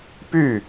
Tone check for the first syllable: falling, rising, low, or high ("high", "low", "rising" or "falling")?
falling